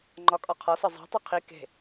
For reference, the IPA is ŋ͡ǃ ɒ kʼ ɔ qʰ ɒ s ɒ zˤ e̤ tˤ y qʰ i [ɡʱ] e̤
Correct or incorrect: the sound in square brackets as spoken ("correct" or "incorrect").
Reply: incorrect